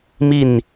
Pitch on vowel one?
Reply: falling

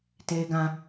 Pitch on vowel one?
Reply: high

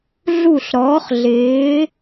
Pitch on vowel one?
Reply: falling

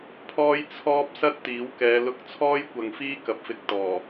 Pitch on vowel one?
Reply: high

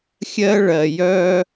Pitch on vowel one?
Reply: high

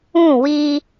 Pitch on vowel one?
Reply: falling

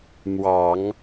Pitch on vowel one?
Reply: low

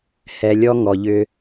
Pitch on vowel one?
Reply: low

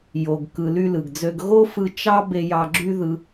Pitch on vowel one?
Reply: low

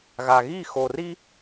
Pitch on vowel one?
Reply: low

